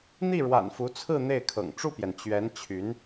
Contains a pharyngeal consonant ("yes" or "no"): no